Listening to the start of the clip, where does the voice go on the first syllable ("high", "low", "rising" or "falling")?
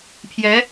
rising